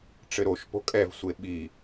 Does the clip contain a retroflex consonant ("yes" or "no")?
yes